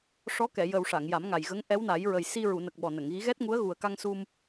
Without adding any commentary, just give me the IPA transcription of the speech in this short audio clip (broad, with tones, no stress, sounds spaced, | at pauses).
ʂ ɔ˧˥ k ɛ˨˩˨ j ə˨˩ w ʂ a˨˩˨ ŋ j a˨˩˦ m ŋ a˨˩ j ɣ ə˧˥ ŋ ʔ ɛ˧˥ w n a˨˩˦ j ɹ ə˨˩ j s i˧ ɹ u˨˩˨ n ə˨˩ k̚ ɓ ɔ˨˩ n ə˨˩˨ ŋ ɣ i˧˥ ɣ ɛ˦˥ t̚ ŋ u˧˥ ə̯ ɣ u˨˩ ə̯ k a˧ ŋ s u˧ m